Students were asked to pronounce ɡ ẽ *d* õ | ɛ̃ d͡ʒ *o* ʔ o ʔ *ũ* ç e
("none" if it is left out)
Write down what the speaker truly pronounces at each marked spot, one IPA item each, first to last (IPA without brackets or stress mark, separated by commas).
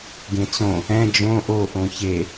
t͡s, õ, õ